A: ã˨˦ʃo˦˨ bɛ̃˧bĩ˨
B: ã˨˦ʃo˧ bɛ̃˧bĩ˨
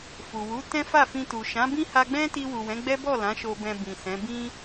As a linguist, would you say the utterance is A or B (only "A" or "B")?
B